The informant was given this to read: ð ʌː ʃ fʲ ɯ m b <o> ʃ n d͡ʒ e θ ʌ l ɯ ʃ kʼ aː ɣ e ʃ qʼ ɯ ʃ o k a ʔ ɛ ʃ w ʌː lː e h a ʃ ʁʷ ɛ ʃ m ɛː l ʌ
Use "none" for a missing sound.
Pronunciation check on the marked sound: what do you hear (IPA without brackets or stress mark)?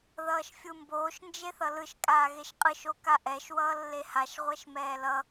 oː